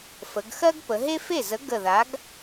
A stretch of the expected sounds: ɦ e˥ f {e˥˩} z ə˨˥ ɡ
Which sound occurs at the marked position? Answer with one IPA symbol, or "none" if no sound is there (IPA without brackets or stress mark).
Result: e˥˩